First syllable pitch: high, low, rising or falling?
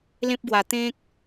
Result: high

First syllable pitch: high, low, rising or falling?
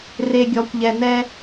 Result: low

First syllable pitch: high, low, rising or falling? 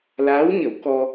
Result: rising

